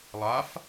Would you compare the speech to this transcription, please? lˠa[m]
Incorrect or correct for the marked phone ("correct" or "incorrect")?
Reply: incorrect